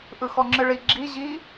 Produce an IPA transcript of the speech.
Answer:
ʔ ɯ x ɔ ŋ͡ǁ ɨ ɭ i ɡ͡ǁ i ʑ i

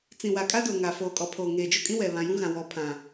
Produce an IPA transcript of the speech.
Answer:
t͡s ĩ˨ w a˨ kʼ a˦ d o˨ ŋ a˨ f oː˨ kʼ ɔ˨ pʰ oː˨ ŋ eː˨ d͡ʒ o˦ kʼ ĩ˦ w ɛ˨ β ã˨ j ũ˦ ɣ ã˨ w ɔ˨ pʰ ã˨

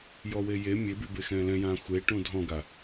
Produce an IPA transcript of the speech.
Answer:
j ɔ w e j e mʲ e b y b e x ɛ̃ː l ɛ̃ j ãː xʷ e ʈ ũ dʱ ɔ̃ ɡ a

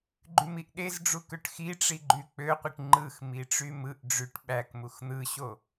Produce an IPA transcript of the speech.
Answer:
ɡ͡ǃ y m i ʔ ɗ e z ɖ͡ʐ u k ø ʈ x i ʈ͡ʂ i ɡ͡ǃ y k͡p ø qʷ i ʈ ŋ͡ǃ ɯ x m i ʈ͡ʂ y m ɯ ʔ ɖ͡ʐ y ʈ ɓ æ k m u x n̪ ɯ ɕ o

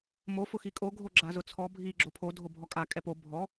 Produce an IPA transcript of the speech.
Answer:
m o f ʊ x i kʼ o ɡʱ o ɡ͡ǁ a z ʊ t͡sʰ ɔ bʱ i ɡ͡ǁ o pʰ o dʱ o bʱ ɔ kʼ a kʼ ɛ p o bʱ ɔ

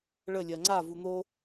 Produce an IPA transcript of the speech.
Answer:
ɭ ə lʲ ɜ ŋ͡ǀ a v u n̪ o

